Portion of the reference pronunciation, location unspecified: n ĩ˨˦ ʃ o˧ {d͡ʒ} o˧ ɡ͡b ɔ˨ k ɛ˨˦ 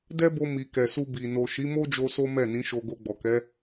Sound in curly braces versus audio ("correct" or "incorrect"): incorrect